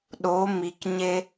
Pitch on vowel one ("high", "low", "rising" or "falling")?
rising